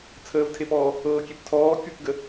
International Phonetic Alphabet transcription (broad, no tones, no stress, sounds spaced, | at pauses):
t͡sʰ əː v tʰ e p ɔː | ɤː kʲ e p tʰ ɔː kʲ u k ɡ ə